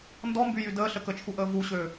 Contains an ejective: no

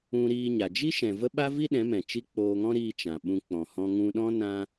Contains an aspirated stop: no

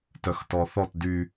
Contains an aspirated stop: no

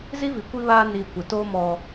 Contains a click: no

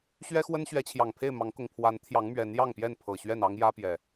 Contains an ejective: no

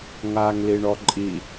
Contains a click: yes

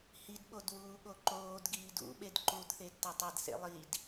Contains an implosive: yes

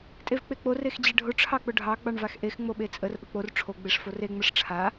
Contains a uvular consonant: no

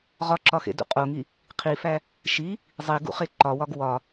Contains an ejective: yes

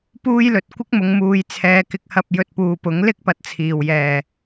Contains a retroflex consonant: no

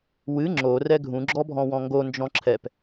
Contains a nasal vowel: yes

